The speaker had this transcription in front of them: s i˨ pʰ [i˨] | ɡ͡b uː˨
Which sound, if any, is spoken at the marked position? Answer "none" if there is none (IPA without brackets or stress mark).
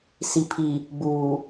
i˨